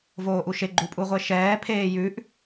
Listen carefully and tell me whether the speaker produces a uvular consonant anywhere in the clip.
yes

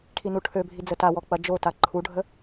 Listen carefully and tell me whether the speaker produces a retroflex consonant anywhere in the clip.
yes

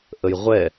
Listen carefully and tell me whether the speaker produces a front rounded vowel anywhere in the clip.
no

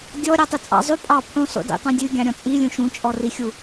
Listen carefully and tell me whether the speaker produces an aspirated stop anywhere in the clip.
yes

